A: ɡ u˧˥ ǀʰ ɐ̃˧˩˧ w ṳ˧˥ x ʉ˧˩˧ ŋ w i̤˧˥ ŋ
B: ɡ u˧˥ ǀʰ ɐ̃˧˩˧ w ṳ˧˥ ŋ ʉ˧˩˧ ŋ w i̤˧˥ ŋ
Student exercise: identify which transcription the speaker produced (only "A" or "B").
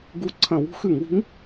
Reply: A